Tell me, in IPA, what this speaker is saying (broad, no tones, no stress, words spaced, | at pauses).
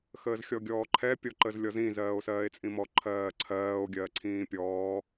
xəːzxʲɔɡʲɔːǃʰɛ pʲɔǃəzlʲɔzĩ zɜːo̯sɜːe̯t͡sʼĩmɔ ǃʰɜːǀʰɜːo̯ ɡʲɜǀʰĩːpʲɔː